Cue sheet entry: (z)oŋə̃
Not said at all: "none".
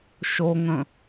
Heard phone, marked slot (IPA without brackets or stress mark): ʃ